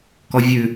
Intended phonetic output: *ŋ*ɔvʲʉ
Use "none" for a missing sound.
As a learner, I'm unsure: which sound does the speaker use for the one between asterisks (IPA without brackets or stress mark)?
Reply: k